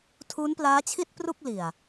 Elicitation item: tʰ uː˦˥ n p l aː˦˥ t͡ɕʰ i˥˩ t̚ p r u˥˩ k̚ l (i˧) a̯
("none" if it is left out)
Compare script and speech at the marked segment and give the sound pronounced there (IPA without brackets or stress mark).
i˨˩